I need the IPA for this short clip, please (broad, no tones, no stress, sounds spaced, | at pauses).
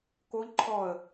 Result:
k o ʎ ǃʰ ɔ ə̯